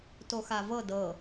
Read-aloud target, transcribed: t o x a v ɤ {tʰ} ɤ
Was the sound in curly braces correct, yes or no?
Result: no